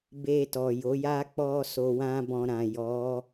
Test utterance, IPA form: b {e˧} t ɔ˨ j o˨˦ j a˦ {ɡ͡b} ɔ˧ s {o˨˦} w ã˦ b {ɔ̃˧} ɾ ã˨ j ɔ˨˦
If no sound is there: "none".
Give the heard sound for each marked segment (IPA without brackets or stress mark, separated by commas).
e˧, k͡p, o˧, ɔ̃˧